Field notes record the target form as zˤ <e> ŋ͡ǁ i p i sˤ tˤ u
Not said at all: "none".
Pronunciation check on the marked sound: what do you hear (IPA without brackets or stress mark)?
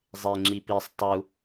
e